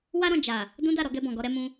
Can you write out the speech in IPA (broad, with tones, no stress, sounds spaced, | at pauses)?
w a˦ ɾ ɔ̃˦˨ d͡ʒ a˨ | d ũ˦ d a˦˨ ɾ ɔ˨˦ ɡ ɛ˧ b ɔ̃˨ ɡ ɔ˧ ɾ ɛ˦ m ũ˦